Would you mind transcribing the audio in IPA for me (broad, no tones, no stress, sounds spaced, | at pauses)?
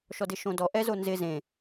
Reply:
ʃ ɔ d ɪ ʃ õ d ɔ ʔ ɛ z o n z ɪ z ẽ